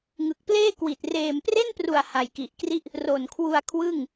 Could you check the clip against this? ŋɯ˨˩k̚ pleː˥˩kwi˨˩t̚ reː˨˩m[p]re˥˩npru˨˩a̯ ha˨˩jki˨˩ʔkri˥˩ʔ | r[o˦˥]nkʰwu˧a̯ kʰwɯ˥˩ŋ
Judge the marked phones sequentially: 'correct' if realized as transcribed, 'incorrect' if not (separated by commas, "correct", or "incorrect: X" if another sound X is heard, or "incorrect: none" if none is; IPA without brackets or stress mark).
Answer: correct, incorrect: o˨˩